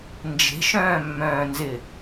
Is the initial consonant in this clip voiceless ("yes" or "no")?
no